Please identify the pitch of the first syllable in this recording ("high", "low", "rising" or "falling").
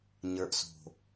low